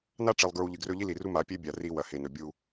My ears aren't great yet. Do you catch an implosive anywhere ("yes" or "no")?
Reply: no